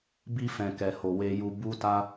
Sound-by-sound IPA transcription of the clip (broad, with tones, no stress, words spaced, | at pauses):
bi˧fɛ̃˨kɛ˨ho˨ we˧ju˧ bu˦ta˦